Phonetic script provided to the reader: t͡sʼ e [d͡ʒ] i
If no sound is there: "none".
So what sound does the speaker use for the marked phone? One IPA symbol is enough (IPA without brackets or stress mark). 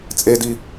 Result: d